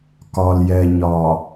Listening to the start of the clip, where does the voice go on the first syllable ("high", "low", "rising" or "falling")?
low